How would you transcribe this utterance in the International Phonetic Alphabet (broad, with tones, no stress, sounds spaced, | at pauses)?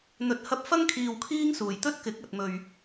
n̪ ɵ˨ t̚ h ɐ˧ p̚ f ɐ˥ ŋ kʰ iː˨ w kʰ iː˧ ŋ s uː˨˩ j t̪ ɵ˥ t̚ k ɪ˨˥ k̚ ɐ˨ t̚ m ɵ˨ ɥ